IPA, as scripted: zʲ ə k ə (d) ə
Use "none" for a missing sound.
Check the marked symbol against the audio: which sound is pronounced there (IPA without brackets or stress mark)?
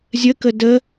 d